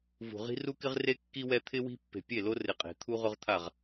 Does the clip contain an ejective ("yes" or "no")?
yes